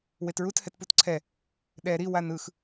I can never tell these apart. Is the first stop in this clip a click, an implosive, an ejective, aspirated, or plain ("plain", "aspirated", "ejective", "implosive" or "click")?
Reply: plain